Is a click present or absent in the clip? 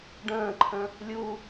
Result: present